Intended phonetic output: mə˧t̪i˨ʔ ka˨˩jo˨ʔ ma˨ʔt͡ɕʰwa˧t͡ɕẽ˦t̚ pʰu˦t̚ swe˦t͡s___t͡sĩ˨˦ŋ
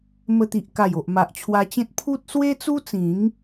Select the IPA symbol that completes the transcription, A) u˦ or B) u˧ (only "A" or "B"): A